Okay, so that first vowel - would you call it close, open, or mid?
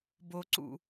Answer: mid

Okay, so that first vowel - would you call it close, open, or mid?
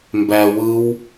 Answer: open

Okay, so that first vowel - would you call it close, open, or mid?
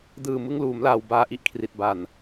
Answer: close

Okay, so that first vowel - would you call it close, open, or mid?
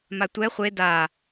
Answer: open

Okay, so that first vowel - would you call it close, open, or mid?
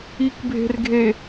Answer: close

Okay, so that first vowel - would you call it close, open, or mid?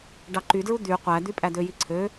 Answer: open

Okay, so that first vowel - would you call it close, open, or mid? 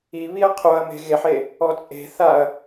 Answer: close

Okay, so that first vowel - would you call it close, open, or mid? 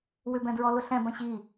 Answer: close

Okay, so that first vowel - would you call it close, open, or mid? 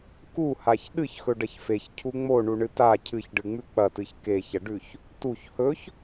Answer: close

